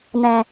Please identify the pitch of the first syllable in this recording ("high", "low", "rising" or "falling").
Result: low